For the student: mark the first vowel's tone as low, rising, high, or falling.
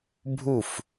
falling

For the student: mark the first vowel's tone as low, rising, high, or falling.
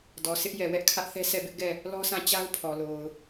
low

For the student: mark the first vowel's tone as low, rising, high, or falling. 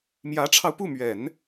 rising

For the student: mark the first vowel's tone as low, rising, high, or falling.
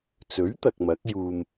rising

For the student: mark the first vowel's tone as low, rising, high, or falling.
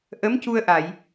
rising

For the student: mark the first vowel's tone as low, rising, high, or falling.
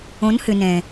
rising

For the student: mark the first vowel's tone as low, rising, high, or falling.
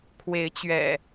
rising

